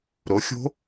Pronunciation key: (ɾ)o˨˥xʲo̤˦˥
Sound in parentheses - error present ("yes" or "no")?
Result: no